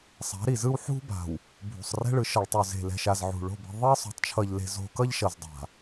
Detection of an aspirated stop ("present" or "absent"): present